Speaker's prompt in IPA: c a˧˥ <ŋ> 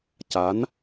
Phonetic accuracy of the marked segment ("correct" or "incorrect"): incorrect